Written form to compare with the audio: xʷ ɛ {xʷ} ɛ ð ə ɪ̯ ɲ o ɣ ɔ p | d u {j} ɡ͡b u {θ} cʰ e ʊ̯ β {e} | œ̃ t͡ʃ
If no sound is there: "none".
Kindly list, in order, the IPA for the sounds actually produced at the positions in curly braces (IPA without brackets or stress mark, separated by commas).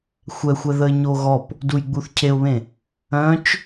xʷ, j, θ, ẽ